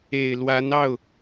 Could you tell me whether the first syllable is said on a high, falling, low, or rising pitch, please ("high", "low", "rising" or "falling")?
low